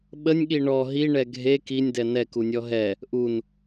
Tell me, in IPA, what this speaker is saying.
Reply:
ɓ ə nʲ ɠ i ɳ ɔ ɦ i ɳ ɛ ɡʱ e k i nʲ d ɛ n ɛ k u nʲ ɔ ɦ ɛ | ʔ u n

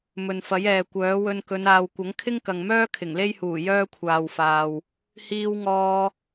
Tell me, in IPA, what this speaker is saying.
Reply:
m ɵ˨ n f ɐ˨˥ j ɛː˨ kʷ œː˨˥ w ɵ˧ n k ɵ˨˧ n aː˨ w kʷ ɐ˨˥ ŋ kʰ ɪ˥ ŋ k ɐ˨ ŋ m œː˥ kʰ ɪ˨˩ ŋ l e˥ j h uː˨˩ j œː˥ kʷʰ aː˨ w f aː˨ w | h iː˧ w ŋ ɔː˧

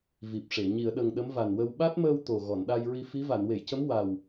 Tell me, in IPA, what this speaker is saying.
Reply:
v i˨˩ p̚ ʂ e˨˩˨ ɲ i˨˩˨ ə̯ ɗ ə˨˩ ŋ ɗ ə˧˥ m v a˨˩ n w ə˧ w ɓ a˦˥ t̚ m əː˧ w t̪ o˨˩ ɣ ɔ˨˩˨ n ɗ a˧ j ɹ i˧ f i˧˥ v a˨˩˨ n w e˨˩˨ j c ə˧˥ m w a˨˩ w

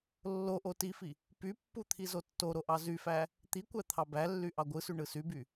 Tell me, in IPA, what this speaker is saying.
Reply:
lː o ʔ o t i f i | p y pː u t̪ʰ i z o tː o ɾ o ʔ ɑ z y f æ | t̪ i kʷ æ t̪ʰ ɑ b æ lː y ʔ ɑ ɡʷ ɯ s y ɳ ɯ s y b y

